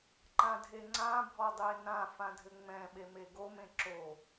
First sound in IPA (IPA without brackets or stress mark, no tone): ǃ